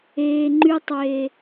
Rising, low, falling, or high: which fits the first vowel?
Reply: low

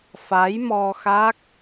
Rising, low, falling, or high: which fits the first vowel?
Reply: rising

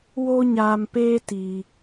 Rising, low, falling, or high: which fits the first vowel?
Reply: high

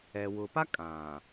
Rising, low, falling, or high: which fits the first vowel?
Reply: low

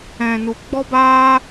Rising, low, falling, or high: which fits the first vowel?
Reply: low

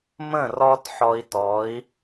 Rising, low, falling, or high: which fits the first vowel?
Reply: falling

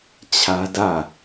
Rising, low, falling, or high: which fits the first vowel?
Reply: high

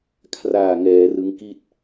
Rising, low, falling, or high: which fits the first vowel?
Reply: low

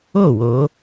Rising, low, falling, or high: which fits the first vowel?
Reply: falling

